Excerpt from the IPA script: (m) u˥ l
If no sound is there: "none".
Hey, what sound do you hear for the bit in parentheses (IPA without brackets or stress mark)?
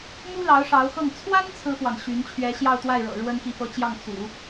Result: m